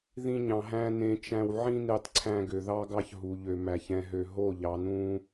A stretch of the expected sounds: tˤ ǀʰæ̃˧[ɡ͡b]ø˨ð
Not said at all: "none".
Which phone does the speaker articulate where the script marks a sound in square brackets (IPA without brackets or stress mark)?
ɡ